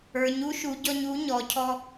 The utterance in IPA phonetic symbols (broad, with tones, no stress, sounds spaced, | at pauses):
ə˞˩˧ ɲ u˧˥ ʃ u˩˧ ɟ ɔ˧ ɲ u˩˥ ɲ ɔ˩˧ cʰ ɔ˧